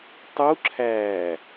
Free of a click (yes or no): no